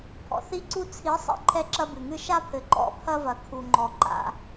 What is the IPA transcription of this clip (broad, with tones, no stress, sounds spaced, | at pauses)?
pʰ ɔ̰˨ θ i˦ ǀ u˦ t͡sʰ i˨˦ sˤ ḛ˨ ǃʰ ɛ˦ ǁ ɐ˦ b ɨ˨ ŋ ɨ˦ ʃ a˦ pʰ ɘ˨ ǃ ɔ̰˦ pʰ ɐ˦ v ɐ˨ kʰ u˨ ŋ͡ǃ ɔ˨ ǃ a̰˦